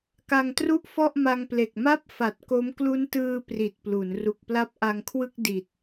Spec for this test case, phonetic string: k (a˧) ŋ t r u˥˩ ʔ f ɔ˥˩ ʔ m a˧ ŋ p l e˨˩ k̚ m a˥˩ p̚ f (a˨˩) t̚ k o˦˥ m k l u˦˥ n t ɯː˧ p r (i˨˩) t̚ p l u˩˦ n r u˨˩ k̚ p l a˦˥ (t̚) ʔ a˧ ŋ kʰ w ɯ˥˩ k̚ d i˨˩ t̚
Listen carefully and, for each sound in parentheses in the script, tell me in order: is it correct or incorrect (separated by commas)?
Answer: correct, correct, correct, incorrect